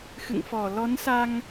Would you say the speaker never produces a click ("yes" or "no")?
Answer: yes